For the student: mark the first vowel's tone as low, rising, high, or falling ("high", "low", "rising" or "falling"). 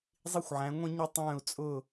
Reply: high